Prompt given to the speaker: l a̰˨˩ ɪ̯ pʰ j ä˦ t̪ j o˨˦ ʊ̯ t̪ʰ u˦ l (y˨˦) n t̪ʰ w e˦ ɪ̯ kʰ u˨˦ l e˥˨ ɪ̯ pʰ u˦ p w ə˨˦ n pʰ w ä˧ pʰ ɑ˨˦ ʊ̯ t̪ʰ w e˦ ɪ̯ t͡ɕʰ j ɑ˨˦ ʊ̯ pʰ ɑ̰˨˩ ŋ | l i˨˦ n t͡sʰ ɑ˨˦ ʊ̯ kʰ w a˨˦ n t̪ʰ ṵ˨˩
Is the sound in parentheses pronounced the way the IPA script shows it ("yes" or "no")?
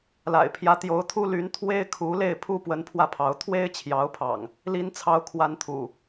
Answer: yes